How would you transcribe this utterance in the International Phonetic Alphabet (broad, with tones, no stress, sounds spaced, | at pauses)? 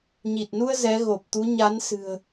ɲ i˨˩ t̚ n u˧ ə̯ z ɛ˨˦ ɣ o˨˩ p̚ t̪ u˨˦ ɲ a˨˦ n s ɨ̤˨˩ ə̯